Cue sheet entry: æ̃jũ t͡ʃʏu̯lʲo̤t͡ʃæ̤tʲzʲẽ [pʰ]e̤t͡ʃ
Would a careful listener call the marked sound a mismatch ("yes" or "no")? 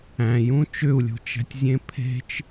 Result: no